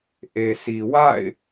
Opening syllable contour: low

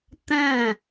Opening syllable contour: falling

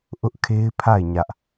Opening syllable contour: high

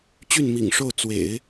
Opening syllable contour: falling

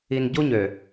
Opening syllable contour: low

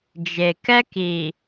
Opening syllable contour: low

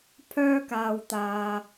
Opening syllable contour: high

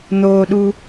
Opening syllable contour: low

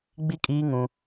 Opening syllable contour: high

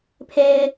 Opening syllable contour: high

